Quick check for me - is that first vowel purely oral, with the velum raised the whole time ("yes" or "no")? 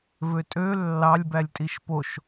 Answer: yes